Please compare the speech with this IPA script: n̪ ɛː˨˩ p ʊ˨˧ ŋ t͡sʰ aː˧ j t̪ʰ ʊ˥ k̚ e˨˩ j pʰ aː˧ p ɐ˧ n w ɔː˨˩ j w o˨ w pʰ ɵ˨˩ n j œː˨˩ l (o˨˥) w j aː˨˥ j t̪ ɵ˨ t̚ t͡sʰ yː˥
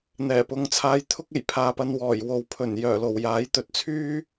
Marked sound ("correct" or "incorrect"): incorrect